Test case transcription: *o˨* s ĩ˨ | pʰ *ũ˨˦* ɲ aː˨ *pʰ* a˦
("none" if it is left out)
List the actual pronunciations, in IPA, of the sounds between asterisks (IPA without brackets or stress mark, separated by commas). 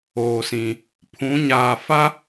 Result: oː˨, ũ˨˦, f